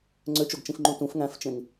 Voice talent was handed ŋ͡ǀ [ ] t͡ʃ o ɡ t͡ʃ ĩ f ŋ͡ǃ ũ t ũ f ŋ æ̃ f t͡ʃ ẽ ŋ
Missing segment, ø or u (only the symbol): ø